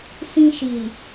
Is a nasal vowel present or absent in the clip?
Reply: present